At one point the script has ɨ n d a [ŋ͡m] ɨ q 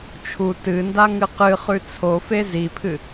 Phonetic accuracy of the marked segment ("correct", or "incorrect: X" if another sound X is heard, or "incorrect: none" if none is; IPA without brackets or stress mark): incorrect: ŋ